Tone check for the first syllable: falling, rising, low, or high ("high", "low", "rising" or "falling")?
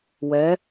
rising